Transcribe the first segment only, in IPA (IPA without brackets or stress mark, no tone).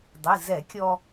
dˤ